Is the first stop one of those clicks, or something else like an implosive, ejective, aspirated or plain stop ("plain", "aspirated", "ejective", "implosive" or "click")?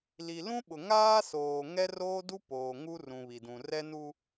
implosive